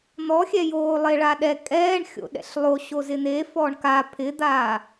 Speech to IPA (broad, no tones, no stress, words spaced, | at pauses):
n̪ɔxʲɛjoːlˠe ɭaɗɛ kʼɛːɳ xʲo̰ɗɛ̰ɬlˠo ɕozɪn̪e fɔɳka pʰɪd̪aː